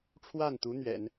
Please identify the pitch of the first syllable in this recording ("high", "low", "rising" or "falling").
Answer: falling